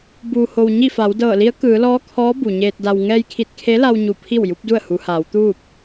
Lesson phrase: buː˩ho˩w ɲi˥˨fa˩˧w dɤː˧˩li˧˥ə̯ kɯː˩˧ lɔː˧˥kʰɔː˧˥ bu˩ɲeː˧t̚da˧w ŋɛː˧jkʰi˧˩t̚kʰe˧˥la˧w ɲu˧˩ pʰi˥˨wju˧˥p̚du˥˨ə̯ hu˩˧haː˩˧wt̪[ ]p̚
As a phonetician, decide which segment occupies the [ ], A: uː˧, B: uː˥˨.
B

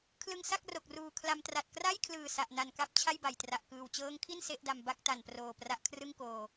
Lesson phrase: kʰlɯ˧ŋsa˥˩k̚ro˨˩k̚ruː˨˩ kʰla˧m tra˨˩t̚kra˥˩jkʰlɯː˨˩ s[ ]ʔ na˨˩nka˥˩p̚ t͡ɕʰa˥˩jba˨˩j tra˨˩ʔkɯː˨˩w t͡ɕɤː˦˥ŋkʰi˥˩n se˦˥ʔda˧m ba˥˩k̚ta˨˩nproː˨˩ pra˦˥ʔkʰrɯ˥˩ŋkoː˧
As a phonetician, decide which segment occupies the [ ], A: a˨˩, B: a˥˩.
A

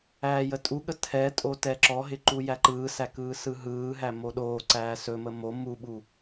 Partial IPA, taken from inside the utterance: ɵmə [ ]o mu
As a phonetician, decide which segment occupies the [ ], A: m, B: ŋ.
A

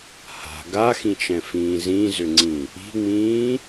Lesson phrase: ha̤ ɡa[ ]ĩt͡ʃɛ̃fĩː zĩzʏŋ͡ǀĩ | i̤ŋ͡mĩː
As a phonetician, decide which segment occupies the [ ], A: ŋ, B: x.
B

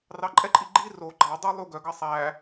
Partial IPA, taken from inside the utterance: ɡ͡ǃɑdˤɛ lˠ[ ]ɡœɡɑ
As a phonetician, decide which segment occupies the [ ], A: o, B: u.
B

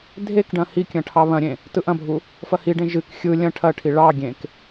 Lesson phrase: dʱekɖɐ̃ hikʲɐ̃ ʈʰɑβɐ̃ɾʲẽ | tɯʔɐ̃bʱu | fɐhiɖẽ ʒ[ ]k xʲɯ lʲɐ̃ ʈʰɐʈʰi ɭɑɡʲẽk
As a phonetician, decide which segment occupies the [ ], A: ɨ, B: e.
A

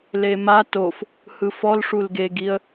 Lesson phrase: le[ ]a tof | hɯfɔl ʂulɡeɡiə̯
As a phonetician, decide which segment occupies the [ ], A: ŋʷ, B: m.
B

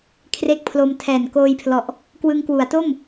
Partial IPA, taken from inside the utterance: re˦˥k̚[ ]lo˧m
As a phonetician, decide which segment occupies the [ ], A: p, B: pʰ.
B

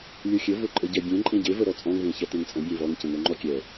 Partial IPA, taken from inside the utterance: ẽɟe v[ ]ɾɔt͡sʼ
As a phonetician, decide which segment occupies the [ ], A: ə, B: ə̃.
A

